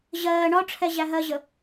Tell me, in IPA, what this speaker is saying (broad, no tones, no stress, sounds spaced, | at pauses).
ʑ ɜː ɳ ɒ ʈ͡ʂʰ ɛ ʑ æ ɦ ɜ ʑ ə